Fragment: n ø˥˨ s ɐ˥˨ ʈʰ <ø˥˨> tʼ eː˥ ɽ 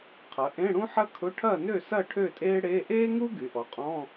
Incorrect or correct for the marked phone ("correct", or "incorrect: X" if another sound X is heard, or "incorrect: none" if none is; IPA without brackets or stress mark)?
correct